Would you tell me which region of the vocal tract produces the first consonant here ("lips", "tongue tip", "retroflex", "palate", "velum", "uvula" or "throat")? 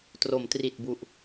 tongue tip